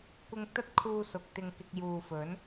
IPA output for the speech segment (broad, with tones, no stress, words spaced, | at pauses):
kʷɪ˧ŋt̪ɐ˥t̚kʰuː˧ sʊ˨k̚t̪ɪ˧ŋkɪ˧k̚ juː˨fɵ˨˥n